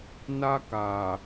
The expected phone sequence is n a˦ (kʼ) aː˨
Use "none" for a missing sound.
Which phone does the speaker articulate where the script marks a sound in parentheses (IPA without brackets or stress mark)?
k